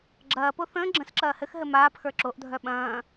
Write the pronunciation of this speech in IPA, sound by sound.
ɡ͡ǁɐːpo θə̃ː ɡ͡ǁə̃sǁɐː hɘxɦɘ maːpxə˞ ǁoʔdʱœ ɓɐ̃ː

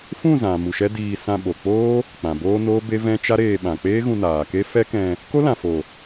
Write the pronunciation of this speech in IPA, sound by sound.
fũ˦˨ zã˨ mu˨ ʃɛ˦diː˧ sã˧ ɓo˨k͡poː˦ | k͡pã˨boː˦ noː˦be˦ vɛ̃˦ t͡ʃa˦ɾeː˧ɓã˨ k͡peː˦ɣũ˧naː˨ke˦ fɛ˦kɛ̃˧ | ko˦lã˨fo˨

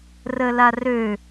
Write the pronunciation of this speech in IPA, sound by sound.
rəlarø

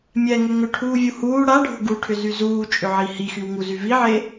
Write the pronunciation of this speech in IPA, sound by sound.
mʲɛŋʏ ŋʏʈʰuːvʲu huː ɽaɖʱo̤ ɡuʈʰʏzy zuːt͡ʃʼʏʕi hixywŋuzy viʕe

